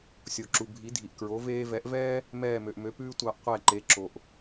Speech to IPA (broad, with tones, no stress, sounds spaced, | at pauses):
sʲ o˩ ǁ u˩ bʱ i˩˥ dʱ i˩ ʔ k ɹ o˩˥ v eː˧ v ɛ˩˥ ʔ v ɛː˥ | m ɛː˥˩ m ø˩ ʔ m ø˩˥ p ʉː˥ tʷ ɑ˧ ʔ qʷ ɛ˥˩ ǃ e˩˥ ǁ o˩ ʔ